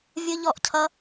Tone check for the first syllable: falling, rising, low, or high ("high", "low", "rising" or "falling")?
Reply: high